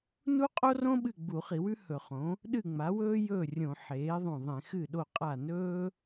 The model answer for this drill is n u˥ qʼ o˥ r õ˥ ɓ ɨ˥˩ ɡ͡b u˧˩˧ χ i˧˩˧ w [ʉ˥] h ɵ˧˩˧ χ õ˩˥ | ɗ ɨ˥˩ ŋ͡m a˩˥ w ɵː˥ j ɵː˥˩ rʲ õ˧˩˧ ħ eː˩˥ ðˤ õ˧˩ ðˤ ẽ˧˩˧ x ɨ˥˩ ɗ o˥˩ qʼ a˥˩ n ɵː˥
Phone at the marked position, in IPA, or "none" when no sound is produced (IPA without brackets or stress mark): ʉ˥